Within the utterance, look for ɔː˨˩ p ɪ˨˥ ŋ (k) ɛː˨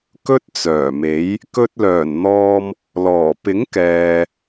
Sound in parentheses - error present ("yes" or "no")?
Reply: no